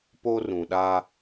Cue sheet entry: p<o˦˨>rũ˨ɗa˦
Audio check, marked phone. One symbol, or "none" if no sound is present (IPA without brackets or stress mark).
o˦